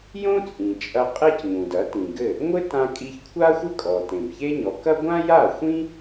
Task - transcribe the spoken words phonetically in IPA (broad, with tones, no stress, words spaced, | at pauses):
jõ˥t͡sʼĩ˩t͡ʃʼɐ˧ qʼe˥cɲũ˩dɐ˩˥ tĩ˩ɡɘ˥˩ | ŋʷɘ˥tã˧kʼi˧ç kʷʰa˥xʷɘ˥kʼɔ˩ tẽ˩bçe˥ɲɔ˩˥ kɐ˥ ɡʷã˥ja˥˩xʷĩ˥